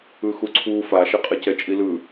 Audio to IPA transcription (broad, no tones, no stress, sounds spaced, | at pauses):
ɯ x u ǀʰ u f a ʃ ɛ qʼ ɛ c ɛ t͡ʃʼ i l ɯ